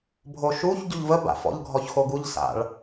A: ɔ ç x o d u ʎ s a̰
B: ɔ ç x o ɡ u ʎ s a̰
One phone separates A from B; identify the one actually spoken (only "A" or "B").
B